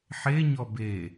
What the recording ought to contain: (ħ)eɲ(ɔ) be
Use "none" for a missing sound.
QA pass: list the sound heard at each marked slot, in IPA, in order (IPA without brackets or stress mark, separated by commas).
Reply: ħ, ɔ